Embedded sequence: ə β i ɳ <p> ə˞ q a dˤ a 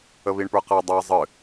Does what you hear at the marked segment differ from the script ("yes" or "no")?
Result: no